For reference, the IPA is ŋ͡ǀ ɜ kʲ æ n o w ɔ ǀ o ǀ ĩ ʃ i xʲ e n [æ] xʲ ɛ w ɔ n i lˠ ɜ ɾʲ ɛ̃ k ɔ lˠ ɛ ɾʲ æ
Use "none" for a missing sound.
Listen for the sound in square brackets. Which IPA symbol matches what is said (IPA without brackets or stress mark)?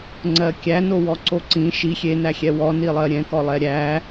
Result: æ